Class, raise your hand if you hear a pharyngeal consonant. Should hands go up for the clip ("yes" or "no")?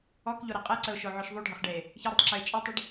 yes